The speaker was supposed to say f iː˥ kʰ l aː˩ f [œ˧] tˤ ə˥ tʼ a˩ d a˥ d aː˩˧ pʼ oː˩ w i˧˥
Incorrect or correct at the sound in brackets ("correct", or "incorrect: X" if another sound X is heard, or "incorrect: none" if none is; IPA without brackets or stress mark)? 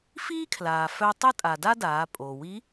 correct